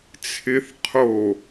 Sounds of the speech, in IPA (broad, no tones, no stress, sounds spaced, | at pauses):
t͡sʰ ɪ θ qʰ o